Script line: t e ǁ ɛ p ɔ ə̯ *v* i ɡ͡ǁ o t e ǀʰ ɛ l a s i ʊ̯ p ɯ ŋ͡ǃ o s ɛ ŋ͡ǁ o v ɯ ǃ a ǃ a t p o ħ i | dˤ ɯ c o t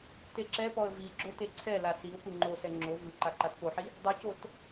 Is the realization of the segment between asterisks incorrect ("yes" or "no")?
no